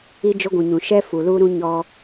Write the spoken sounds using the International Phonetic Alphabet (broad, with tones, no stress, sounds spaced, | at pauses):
i˦ d͡ʒ ʊ˦ ɡʷ ũ˨ ɲ ũ˨ ʃ ɛ˦ f u˨ l uː˦ ɾ ũ˦ ɲ ɔ˦